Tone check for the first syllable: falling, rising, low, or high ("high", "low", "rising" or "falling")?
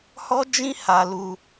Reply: high